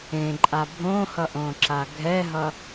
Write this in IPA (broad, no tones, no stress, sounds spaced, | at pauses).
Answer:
ẽ ǃʼ a bʱ õ h ʌ ʔ õ ǁ a ɡʱ ɛ ɦ ʌ